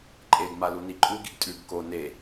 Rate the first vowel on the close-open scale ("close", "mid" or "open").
mid